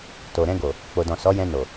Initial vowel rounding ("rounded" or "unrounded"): rounded